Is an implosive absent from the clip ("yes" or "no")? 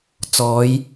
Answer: yes